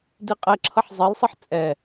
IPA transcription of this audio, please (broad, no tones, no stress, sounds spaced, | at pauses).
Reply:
d i qʼ ɛ ǁʰ ʌ ħ zˤ e l sˤ ɘ ħ t͡sʼ ɛ